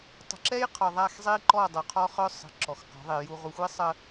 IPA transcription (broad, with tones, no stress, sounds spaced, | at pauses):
tˤ ə̤˨ ǁ ɛ˦ j qʰ ɔ˨ ðˤ a˦˨ x zˤ i˦ ǃ ɔ˦˨ dˤ o˨ qʰ ɔ˦ χ œ˦ sˤ ə̤˨ ǁ ɔ˨ x q ɔ̤˨˦ ðˤ i˨ j u˨ ʁ u˨ xʷ i˦ sˤ ə˦